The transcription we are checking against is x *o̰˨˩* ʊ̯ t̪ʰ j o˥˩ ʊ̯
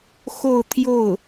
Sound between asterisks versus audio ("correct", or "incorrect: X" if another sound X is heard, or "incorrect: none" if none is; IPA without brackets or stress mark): incorrect: o˥˧